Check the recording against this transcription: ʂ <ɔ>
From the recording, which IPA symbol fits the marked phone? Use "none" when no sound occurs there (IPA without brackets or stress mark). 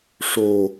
o